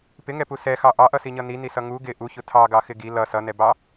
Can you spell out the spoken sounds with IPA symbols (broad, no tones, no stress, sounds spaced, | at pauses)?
p ɪ ŋ ɛ p u s ɛ x ɑ ʔ ɑ ʔ ʌ s i ɲ ʌ n i n i s ʌ ŋ u ɡ ɪ ʔ u ç ʊ tʰ ɑ ɡ ɑ x ɪ ɡ i l ʌ s ʌ n ɛ b ɑ